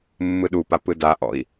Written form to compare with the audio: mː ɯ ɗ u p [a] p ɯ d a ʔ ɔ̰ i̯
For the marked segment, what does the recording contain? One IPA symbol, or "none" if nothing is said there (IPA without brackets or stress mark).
a